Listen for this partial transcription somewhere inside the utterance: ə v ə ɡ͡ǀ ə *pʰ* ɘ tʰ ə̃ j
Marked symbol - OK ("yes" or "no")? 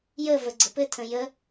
no